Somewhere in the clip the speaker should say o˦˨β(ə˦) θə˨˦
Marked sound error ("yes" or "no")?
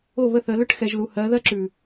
yes